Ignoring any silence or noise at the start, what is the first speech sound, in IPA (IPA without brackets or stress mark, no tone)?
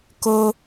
k